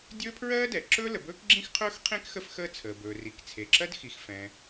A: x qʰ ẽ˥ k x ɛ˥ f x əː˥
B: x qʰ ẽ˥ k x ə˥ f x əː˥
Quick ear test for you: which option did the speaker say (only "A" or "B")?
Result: B